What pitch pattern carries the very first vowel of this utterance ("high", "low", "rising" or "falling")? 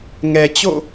low